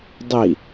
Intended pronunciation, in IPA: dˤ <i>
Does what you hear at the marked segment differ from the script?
no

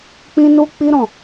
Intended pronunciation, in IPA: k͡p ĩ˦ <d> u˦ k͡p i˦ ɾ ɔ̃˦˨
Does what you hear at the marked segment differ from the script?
yes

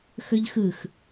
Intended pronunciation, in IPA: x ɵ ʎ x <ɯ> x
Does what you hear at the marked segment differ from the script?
no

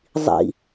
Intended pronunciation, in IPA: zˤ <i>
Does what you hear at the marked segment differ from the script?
yes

